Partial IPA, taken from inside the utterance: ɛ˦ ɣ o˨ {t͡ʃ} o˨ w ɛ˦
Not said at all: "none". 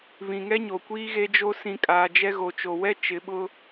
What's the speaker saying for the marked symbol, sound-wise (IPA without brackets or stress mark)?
t͡ʃ